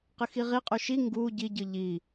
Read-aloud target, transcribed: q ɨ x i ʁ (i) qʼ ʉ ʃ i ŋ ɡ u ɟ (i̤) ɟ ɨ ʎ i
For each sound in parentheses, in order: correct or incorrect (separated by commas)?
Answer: correct, incorrect